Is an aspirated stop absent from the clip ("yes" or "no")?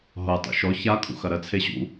no